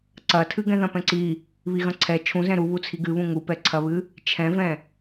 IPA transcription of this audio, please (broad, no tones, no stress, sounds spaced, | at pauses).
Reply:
ǀ ɐ tʰ ɨ ɡ ɛ̃ ð ɐ̃ p ɛ̃ ǀ i | β i ɣ ɐ̃ ǀʰ ɛ t͡ʃʰ ũ z ɛ̃ ɾ u β u t͡sʰ i ɡ ɨ β ũ ŋ u p ɛ ǀʰ ɐ β ɨ | t͡ʃʰ ɛ̃ v ɛ̃